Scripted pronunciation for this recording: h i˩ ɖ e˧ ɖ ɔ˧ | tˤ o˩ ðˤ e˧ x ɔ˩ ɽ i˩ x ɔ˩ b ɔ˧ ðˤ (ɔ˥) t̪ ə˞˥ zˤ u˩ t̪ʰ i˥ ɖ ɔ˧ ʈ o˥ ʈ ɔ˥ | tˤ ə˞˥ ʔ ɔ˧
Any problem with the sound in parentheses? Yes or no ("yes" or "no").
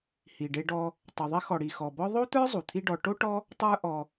yes